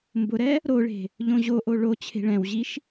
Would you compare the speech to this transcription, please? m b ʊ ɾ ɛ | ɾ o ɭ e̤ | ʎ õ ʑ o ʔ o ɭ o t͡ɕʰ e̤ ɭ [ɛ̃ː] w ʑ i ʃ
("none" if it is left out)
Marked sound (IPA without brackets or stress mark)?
ɛ̃